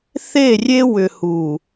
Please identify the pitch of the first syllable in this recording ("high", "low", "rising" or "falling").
falling